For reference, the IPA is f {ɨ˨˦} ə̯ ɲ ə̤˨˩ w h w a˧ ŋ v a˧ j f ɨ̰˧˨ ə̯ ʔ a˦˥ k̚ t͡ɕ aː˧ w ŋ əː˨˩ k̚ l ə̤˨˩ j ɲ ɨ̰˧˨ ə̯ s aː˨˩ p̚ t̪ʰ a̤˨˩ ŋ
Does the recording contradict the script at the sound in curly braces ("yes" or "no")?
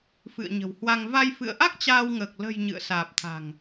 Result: yes